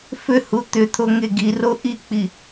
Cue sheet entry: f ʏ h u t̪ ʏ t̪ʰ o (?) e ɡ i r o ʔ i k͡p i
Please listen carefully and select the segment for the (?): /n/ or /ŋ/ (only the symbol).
ŋ